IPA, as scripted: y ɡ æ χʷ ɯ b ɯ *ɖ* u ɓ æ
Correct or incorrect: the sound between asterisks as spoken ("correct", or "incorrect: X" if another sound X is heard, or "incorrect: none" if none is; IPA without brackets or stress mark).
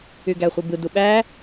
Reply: incorrect: d